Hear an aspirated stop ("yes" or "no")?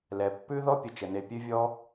no